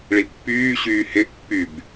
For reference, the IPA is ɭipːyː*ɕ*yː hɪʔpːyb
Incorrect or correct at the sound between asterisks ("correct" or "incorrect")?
correct